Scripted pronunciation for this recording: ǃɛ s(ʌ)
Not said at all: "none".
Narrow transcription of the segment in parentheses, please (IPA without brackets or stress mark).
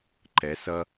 ʌ